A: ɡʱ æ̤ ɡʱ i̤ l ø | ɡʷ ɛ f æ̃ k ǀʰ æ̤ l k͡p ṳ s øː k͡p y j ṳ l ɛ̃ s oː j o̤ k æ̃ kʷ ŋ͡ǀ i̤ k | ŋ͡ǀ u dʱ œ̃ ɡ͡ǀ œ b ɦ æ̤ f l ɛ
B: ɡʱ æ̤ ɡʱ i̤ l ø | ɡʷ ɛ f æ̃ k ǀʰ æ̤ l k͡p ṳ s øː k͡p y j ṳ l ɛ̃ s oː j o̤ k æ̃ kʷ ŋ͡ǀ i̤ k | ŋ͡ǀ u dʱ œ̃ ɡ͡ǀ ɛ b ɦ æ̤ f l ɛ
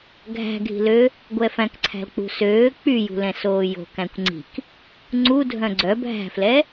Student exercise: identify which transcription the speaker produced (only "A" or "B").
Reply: A